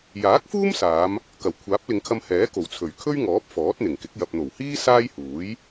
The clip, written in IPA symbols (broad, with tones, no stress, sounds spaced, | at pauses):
j aː˨˥ k̚ f uː˥ m s aː˨˧ m | k ɐ˨˩ w kʷʰ aː˨˥ p̚ l ɪ˨˧ ŋ kʰ ɐ˧ m h ɛː˨˥ k o˨˩ w t͡sʰ ɵ˨˩ ɥ kʰ ɵ˥ ɥ ŋ ɔː˨˥ p̚ f ɔː˨˥ t̚ n̪ ɪ˨˩ ŋ k ɪ˨˥ k̚ j ɐ˨ p̚ n̪ o˨˩ w h iː˥ s aː˥ j h uː˨˥ j